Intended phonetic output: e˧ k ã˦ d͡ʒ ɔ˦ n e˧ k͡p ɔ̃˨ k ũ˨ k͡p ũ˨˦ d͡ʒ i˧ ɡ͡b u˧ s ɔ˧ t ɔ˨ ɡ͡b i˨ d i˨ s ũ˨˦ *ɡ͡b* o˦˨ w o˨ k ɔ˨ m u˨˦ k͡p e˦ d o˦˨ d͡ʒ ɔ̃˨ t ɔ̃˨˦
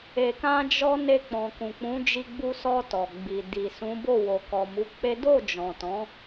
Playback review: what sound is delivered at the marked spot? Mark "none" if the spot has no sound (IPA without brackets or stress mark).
b